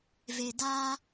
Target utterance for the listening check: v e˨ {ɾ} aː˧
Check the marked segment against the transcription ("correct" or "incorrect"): incorrect